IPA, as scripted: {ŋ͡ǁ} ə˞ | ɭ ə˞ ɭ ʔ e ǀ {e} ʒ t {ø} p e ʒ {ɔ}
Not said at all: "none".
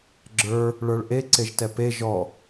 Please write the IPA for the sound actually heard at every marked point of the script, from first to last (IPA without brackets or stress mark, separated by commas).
ɡ͡ǁ, e, ɛ, ɔ